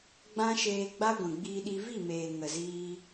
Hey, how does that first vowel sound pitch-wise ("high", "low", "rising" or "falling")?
high